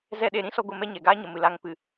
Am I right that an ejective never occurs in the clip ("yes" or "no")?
yes